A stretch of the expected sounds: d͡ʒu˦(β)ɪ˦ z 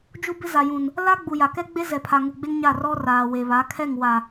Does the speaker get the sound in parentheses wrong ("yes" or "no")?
yes